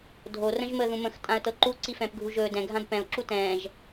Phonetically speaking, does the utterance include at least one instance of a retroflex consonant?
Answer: no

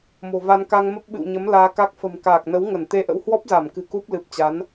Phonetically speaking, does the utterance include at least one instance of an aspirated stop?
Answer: no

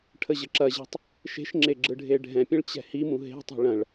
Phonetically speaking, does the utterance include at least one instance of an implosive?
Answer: no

